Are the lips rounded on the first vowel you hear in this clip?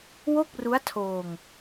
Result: yes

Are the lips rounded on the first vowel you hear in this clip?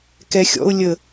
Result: no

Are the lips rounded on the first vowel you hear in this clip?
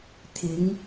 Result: no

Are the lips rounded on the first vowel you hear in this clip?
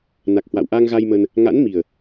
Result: no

